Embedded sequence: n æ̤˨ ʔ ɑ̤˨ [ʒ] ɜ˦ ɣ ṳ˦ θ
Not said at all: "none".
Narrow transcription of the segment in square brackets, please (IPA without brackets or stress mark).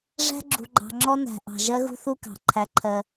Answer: ʒ